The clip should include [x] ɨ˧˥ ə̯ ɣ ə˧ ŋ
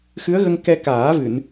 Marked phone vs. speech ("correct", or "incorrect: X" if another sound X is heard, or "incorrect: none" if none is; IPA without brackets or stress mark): correct